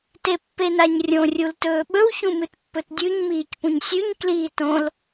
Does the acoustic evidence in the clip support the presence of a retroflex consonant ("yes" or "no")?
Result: no